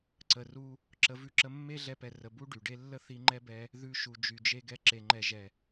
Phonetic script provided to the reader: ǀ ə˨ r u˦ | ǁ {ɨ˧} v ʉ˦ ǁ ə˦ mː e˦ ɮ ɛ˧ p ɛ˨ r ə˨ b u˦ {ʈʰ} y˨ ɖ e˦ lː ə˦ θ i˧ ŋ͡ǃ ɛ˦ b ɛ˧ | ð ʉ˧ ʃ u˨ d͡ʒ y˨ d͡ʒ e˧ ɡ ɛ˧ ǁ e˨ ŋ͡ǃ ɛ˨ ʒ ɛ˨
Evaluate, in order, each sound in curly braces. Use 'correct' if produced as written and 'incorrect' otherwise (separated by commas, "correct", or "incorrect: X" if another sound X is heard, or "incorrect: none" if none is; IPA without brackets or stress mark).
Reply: incorrect: ə˧, incorrect: ɖ